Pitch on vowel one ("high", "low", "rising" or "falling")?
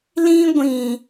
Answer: high